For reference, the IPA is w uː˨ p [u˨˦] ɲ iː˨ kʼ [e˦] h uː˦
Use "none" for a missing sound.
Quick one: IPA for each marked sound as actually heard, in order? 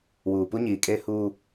u˦, e˦

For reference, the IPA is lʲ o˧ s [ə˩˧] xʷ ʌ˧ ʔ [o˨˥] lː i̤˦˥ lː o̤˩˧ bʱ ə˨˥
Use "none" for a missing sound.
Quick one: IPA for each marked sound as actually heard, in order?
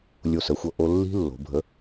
ə˩˧, o˧

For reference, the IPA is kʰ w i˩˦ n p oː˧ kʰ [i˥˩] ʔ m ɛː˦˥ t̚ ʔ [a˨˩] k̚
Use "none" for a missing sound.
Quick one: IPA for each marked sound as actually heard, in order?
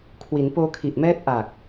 i˨˩, a˨˩

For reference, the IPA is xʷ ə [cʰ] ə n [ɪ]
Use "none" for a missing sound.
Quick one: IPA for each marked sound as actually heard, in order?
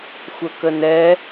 k, ɛ

